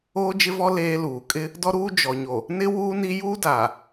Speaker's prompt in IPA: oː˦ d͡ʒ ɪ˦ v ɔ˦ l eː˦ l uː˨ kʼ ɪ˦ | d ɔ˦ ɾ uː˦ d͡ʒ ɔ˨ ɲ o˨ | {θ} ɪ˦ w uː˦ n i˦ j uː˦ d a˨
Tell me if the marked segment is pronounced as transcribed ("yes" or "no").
no